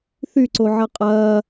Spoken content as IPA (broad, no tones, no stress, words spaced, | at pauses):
θyǀoʕɐ qʼɐː